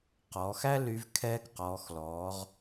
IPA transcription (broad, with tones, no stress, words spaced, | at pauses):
qɔ˩˧xæ˥ ly˧v kʰɛː˧kqɔː˩˧xlɔː˩˧ʁ